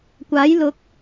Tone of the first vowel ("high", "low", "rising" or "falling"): rising